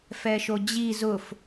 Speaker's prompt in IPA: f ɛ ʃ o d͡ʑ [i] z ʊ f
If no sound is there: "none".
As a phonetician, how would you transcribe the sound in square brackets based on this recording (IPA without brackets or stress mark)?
i